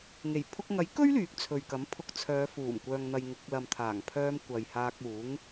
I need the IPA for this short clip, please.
ŋ e˨˩ j pʰ ʊ˧ k̚ ŋ ɐ˨˥ j k ɵ˥ ɥ l yː˨˥ k̚ t͡sʰ ɵ˨ ɥ k ɐ˨˥ m pʰ ʊ˧ k̚ t͡sʰ œː˨˧ f uː˨˩ m kʷ œː˨ ŋ n̪ ɐ˨ j ŋ ɪ˨˥ k̚ l ɐ˨ m t̪ʰ aː˨˩ ŋ pʰ œː˧ m kʷ ɐ˨ j h aː˧ k̚ uː˨˥ ŋ

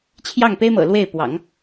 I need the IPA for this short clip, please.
t͡ɕʰ j ɑ˥˩ ŋ p e˥ ɪ̯ m ɤ̰˨˩ l w e˥˩ ɪ̯ p w ɑ̰˨˩˦ ŋ

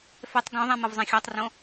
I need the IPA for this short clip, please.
f ɛ tˤ ɡ õ ðˤ ɛ̃ m ɤ v zˤ ɛ̃ xʲ ɔ tˤ r õ

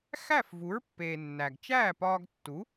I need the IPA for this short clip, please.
x æ˥˩ f v u˩˥ ɹ pː eː˩ nː æ˩ ɡ t͡ʃ æː˥˩ p ɒː˧ ɡ tː u˩˥

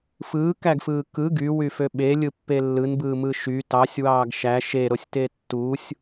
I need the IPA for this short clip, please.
f ɯː k æ ɡ f ɯː k ɯ ɡ y w y f ø ɓ e lʲ ɯ pː e lː ɯ n b ɯː m ɯ ʃ y t ɑ sʲ w ɑː ɡ ʃ æ ʃ e ɾ o sʲ t e tː u sʲ

